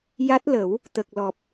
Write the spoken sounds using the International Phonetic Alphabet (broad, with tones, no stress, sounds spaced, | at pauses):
j a˦˥ t̚ l ə˨˩˦ w | t̪ ə˨˩ k̚ l ɔ˨˩ p̚